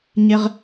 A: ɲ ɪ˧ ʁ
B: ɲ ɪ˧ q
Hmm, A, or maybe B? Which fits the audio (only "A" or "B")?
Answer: A